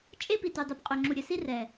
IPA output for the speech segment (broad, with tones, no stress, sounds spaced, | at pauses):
t͡ʃʼ e˦ p i˨ t ʉ˨ dˤ y˨ p qʼ œ˨ ŋ͡ǁ u˨ ɾʲ œ˨ s i˦ r ɛ˨